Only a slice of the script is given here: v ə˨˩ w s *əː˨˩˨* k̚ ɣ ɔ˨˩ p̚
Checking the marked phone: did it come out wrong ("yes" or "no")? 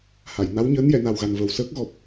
yes